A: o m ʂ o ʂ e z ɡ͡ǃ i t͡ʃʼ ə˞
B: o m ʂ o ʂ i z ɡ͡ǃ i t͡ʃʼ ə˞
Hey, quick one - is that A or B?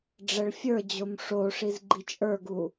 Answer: B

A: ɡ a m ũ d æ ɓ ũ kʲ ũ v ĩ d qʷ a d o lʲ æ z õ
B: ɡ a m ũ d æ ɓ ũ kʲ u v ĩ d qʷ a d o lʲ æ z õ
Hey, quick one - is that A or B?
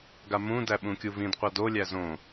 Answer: B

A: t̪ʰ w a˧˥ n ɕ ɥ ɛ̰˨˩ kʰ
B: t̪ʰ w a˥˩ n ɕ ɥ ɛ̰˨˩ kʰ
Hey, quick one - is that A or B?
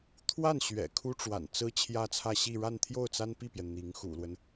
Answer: B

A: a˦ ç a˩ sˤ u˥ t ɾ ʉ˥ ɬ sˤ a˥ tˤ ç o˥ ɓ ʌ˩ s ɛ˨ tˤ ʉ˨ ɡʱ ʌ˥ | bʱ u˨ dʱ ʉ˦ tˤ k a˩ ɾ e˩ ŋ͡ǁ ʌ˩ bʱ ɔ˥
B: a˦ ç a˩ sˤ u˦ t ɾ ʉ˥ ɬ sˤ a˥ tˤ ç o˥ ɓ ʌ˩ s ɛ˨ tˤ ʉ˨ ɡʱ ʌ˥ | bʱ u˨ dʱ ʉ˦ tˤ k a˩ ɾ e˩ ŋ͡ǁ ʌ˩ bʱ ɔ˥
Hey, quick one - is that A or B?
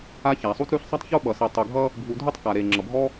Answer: A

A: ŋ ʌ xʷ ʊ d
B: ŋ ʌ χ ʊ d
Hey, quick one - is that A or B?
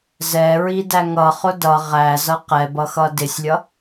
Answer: B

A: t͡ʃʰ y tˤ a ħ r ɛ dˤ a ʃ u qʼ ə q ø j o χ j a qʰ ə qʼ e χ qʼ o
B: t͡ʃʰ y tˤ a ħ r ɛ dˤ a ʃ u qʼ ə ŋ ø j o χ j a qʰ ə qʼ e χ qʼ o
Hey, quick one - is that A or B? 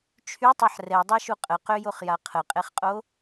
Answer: A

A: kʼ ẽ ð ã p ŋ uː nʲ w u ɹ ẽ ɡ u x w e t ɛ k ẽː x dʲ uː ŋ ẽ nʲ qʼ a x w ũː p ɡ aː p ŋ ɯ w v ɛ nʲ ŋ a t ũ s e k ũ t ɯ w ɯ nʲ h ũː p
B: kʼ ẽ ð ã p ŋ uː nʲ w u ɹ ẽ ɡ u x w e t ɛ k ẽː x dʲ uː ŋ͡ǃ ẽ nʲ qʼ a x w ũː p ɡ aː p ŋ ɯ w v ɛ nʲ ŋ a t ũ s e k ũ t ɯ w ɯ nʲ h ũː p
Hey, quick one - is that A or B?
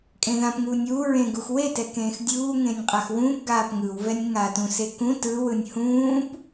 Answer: A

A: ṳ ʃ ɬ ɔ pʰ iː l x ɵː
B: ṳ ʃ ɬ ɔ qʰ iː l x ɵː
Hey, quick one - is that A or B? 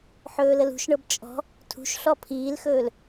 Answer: A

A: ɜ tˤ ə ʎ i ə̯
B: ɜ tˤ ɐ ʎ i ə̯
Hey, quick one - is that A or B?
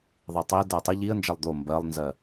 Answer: A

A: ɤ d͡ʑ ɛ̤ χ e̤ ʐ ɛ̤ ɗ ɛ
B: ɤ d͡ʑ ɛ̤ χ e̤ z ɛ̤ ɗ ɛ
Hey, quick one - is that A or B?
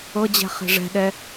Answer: A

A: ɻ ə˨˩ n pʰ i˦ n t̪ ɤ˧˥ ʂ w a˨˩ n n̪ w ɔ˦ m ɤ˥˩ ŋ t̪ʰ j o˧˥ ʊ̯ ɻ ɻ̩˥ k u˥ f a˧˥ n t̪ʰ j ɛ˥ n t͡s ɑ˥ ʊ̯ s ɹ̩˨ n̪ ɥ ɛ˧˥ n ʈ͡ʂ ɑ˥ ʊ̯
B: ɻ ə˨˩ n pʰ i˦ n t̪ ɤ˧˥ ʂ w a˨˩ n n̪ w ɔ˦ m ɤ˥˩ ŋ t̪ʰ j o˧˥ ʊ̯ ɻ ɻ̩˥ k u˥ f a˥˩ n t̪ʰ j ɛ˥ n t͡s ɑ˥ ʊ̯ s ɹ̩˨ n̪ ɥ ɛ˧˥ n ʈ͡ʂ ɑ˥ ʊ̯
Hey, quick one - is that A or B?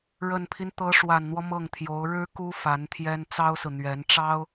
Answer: A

